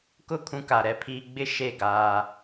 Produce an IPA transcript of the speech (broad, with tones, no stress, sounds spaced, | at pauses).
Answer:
k ʊ˦˨ kʰ ũ˦ k a˨ ɾ ɛ˦ pʰ iː˦ ɡ͡b ɪ˦ ʃ e˦˨ ɡ aː˦